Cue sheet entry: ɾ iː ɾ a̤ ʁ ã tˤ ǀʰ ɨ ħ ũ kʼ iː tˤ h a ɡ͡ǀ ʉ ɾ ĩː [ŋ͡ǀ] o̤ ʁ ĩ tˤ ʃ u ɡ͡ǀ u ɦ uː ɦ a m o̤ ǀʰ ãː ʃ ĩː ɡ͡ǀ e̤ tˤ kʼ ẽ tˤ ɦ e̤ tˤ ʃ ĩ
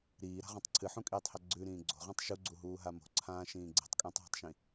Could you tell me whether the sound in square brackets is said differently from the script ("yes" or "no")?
yes